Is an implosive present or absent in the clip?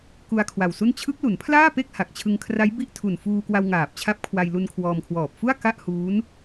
absent